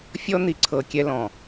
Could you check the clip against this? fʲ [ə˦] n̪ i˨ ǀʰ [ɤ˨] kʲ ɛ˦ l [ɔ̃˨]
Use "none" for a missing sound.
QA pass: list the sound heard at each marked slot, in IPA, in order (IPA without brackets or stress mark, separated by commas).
ɔ˦, ɤ˨, ɔ̃˨